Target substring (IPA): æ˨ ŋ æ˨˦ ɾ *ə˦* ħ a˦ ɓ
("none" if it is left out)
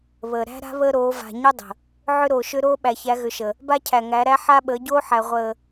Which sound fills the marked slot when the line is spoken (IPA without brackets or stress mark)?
æ˦